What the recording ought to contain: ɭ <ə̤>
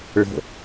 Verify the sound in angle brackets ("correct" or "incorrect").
correct